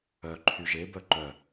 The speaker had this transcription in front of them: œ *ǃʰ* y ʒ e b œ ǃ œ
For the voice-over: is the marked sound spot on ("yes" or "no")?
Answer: yes